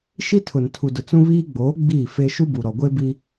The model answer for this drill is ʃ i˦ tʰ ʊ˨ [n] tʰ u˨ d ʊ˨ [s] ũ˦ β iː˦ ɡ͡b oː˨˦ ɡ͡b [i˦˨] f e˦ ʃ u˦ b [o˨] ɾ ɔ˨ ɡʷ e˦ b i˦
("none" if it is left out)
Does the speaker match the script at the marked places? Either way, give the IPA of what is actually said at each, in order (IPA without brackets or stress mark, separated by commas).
n, t͡s, i˦˨, u˨